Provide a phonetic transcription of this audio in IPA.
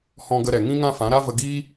h ɔ̃˧ ɡ ə˧ ɾ ɛ˨ ŋ ĩ˦ ŋ ã˦ f ã˨˦ ɾ a˦ v ə˧ ɡ iː˦

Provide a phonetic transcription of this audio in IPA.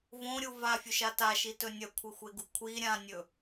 v õ ɾʲ u v a fʲ ɵ ʃ a t a ʃ i t ɵ nʲ ɐ kʷʰ e xʷ e ɡ u kʷʰ i ɾʲ ã nʲ ɵ

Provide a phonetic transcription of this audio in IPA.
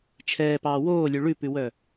t͡ʃʰ ɛː p ɑː w oː lʲ ʉ ɭ ʉ p ʉ w œ

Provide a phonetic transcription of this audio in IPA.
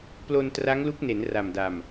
p l o˧ n t r a˦˥ ŋ l u˦˥ k̚ n e˩˦ n r a˨˩ m d a˨˩ m

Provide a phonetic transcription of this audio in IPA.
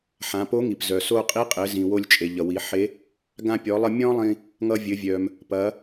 ħ ã˩˧ p o˧˥ ŋ i˩ p z œ˩ s o˧ qʼ i˧˥ qʼ ɘ˩˧ z ĩ˩ w o˧ lʲ t͡ʃʼ e˩ ʎ ʌ˩ w i˩˧ ħ e˧˥ | ɡ ã˧ pʲ ɔ˩˧ lˠ ʌ˧ mʲ ɔ̃˥ lˠ ĩ˧ | ŋ ʌ˧ vʲ ɘ˩˧ vʲ œ˩ m | p ɐ˩˧

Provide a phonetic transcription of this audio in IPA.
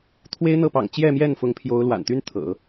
t̪ʰ w e˥ ɪ̯ n̪ ɤ˥˩ p ɑ̰˨˩ ŋ t͡ɕ j ɛ˥˧ m j ɛ˥˩ n f ʊ˧˥ ŋ pʰ j o˧˥ ʊ̯ l w a̰˨˩ n t̪ y˥ n t̪ʰ ɤ̰˨˩˦

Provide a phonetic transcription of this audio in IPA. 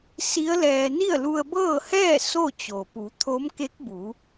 s i˧˥ ə̯ l ɛː˧ n i˥˨ ə̯ l u˧ ə̯ b ɤː˥˨ h ɛː˥˨ s o˥˨ t͡ɕ o˩ p u˩˧ t̪ʰ o˧˥ m k e˧˥ k̚ b u˩˧

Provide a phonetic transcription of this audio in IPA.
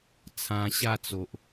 t͡sʰ ã˧ ɕ a˥˧ t͡s o˨ ʔ

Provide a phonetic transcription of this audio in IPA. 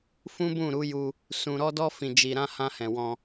f ũ˦ b ũ˦˨ ɾ u˨˦ j u˧ | s ũ˨ ɾ ɔ˧ d ɔ˧ f ĩ˨ d͡ʒ i˨ ɾ ã˧ h ã˧ h ɛ̃˨ w ɔ̃˧

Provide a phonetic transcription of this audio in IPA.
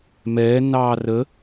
m ɛː nː ɑː r ə

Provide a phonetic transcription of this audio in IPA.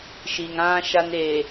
ʃ i˨ ŋ ã˦ ʃ a˦ n eː˨

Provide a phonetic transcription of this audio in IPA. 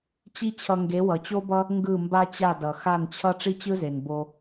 t͡ɕ i˦ t͡ɕʰ ʌ˧ ŋ ɡ e˨˦ w ʌ˨ t͡ɕ o˦ b ʌ˦ | ŋ ɡ ɯ˦˨ m b a˦ t͡ɕ a˦˨ d ʌ˨ x a˦˨ n t͡ɕʰ ʌ˦ ʈ͡ʂ i˦ t͡ɕ ɯ˦ z e˨ n b o˧

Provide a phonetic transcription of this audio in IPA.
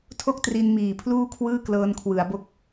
tʰ o˥˩ k̚ t r i˧ n m iː˨˩ pʰ l uː˥˩ kʰ w ɯː˥˩ k l ɤː˧ n kʰ w ɯ˩˦ a̯ b o˦˥ k̚

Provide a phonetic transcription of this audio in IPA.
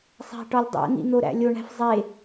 sˤ æ̤ ʈ ɒ lʲ dˤ æ̰ n̪ ḭ n̪ o ɾ æ̰ lʲ o ɳ æ̤ f zˤ e

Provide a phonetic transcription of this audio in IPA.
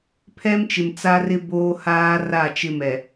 pʰ ɛ˦ m t͡ʃ ɪ˨ m t͡s a˦ r ɪ˦ b oː˦ h aː˦ r a˦˨ t͡ʃ ɪ˦ m ɛ˨

